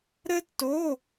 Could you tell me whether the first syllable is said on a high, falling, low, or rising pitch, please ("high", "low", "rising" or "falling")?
high